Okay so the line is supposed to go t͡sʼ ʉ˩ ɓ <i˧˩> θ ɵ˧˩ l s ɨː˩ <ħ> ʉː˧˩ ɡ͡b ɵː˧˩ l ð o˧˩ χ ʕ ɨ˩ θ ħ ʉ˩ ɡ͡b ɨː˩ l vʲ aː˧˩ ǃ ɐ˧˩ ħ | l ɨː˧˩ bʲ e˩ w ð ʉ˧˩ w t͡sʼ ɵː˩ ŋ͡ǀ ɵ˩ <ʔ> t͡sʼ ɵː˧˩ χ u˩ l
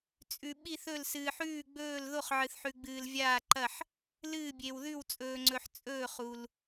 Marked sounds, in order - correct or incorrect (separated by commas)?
correct, correct, incorrect